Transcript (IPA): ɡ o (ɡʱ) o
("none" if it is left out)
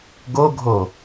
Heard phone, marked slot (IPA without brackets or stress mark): ɡʱ